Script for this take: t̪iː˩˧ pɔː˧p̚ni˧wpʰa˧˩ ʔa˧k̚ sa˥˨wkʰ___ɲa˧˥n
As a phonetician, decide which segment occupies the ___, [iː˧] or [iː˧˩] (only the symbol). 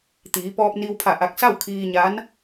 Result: iː˧